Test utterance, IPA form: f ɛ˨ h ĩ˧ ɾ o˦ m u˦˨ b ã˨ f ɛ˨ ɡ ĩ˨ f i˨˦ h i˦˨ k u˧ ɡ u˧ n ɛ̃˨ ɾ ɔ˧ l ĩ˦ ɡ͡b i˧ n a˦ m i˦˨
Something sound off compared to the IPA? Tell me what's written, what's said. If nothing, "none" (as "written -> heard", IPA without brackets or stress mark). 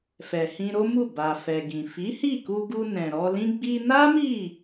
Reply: ã˨ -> a˨